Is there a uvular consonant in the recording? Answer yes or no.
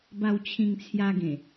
no